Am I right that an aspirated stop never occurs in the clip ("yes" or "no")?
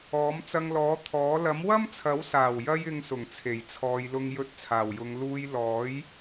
no